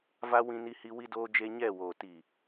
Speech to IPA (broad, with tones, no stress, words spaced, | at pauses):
va˦ wĩ˦ni˦hi˦ wi˦doː˦d͡ʒe˦ ɲɛ˦˨woː˨ ti˨